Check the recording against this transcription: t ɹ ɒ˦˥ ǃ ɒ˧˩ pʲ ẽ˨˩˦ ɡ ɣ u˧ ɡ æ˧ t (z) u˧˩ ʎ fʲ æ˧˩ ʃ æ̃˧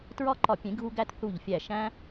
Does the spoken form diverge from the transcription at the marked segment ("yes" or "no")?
yes